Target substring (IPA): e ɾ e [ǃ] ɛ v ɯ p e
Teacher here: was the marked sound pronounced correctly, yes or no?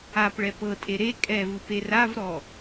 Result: no